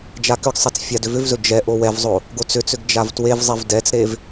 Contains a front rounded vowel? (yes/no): yes